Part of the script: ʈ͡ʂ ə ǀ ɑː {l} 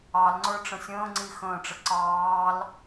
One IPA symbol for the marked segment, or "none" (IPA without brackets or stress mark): l